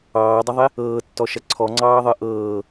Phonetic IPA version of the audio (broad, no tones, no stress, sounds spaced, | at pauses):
ɑː dˤ ə ðˤ e | ɤː tː ɔ ʃ ɐ ǀʰ ɔ ŋ͡ǀ ɑː ðˤ ɤ ʔ ɤː